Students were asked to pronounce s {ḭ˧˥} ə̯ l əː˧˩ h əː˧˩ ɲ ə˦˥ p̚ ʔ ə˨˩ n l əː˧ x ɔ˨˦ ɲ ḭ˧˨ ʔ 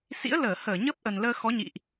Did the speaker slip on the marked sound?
no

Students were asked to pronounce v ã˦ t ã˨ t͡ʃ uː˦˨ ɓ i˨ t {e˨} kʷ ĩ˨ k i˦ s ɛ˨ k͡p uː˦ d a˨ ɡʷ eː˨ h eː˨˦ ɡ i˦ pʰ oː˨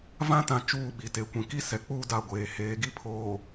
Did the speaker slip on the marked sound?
no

